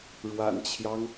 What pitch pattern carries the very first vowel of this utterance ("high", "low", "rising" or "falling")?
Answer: low